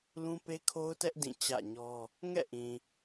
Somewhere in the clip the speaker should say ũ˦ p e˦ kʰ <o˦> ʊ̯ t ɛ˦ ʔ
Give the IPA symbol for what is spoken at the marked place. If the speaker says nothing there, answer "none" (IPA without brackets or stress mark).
o˦